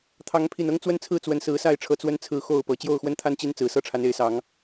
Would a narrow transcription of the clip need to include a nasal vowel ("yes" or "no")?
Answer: no